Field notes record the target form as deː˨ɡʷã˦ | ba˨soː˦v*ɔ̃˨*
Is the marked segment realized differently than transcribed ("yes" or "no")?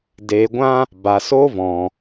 no